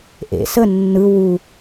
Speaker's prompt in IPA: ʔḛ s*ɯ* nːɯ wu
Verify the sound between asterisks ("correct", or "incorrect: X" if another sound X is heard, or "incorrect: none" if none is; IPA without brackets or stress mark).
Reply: incorrect: ə